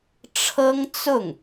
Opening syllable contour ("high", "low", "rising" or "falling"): high